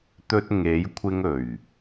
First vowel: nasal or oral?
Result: oral